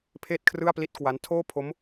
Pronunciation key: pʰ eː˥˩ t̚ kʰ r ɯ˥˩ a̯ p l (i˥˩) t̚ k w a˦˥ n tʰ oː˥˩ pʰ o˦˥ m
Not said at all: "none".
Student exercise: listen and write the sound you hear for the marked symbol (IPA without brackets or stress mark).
i˥˩